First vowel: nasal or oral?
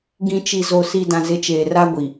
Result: nasal